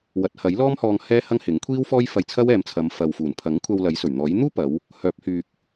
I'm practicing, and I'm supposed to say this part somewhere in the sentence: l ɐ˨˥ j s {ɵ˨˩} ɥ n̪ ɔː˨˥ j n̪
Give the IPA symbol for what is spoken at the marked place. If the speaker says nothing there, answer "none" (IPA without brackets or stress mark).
ɵ˨˩